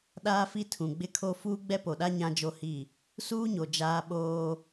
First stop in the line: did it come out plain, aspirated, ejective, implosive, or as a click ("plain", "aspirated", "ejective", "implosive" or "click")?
implosive